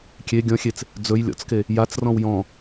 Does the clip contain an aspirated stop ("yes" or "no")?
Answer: no